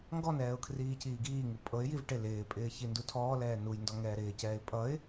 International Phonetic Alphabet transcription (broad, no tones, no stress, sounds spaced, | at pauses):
ŋ ɡ ɔ n ɛː ʊ̯ kʰ r iː c iː ɡ iː ŋ u pʼ ɤ ɪ̯ j i v ʈ ɪ l ɪː pʼ ɪː ç i n d u tʰ ɔː l ɛː n u j n d ɔ ŋ ɛː ɾ ɪː c ɛː ɪ̯ pʼ ʌ ɪ̯